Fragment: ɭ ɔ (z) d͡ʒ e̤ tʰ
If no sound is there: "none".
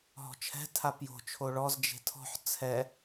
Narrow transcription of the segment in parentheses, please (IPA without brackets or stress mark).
z